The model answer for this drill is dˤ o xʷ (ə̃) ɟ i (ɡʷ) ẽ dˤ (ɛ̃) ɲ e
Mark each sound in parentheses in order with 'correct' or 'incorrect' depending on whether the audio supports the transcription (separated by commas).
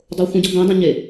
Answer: correct, correct, correct